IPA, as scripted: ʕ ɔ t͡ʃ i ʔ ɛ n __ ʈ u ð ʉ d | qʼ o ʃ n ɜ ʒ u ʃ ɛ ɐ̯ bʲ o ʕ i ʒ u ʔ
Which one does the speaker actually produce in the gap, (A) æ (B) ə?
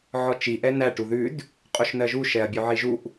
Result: A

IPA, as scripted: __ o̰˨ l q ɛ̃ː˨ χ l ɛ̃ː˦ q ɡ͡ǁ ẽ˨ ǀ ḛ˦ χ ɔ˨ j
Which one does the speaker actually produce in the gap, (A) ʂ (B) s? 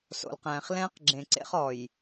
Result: B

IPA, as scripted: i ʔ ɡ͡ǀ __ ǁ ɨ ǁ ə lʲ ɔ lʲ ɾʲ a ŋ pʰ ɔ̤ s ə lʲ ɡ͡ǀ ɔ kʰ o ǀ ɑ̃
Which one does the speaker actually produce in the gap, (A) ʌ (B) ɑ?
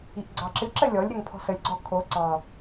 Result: B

